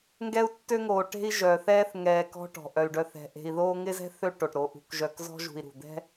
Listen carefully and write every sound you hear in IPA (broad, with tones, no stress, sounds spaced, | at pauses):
ŋ ɡ ɛ˦ u̯ tː ø˦ ŋ oː˨ ʈ e̤˦ i̯ ʒ œː˨ θ ɛː˥ θ ŋ ɛː˨ k ɔ̤˦ ʈ ɔ̤˩ ʔ œ˩ y̯ ɖ œ˨ θ ɛ̤˩ ʔ e̤˨ i̯ ð oː˦ ŋ ɪ˥ z ɛ̤˥ θ ø˦ ʈ o˩ ʈ ɾ o˩ ʔ ṳ˨ k ʒ œ˨ k z ɔ̤˦ ʒ ṳ˨ i̯ ɾ ṳ˩ d̪ ɛ̤˥